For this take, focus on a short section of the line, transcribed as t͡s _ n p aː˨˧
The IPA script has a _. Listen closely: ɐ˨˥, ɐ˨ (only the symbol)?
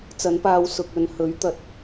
ɐ˨˥